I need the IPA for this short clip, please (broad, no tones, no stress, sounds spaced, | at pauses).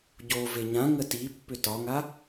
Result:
ɟ o v e ɲ ã ŋ ə t i pː ʏ t ɒ ŋ a